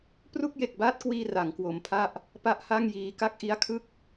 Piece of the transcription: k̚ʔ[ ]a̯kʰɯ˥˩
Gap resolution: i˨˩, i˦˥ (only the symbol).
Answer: i˦˥